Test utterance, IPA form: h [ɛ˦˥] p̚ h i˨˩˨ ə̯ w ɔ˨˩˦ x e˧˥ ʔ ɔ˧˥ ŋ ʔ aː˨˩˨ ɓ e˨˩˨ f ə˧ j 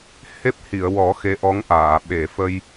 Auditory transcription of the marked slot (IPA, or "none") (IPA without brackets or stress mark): e˦˥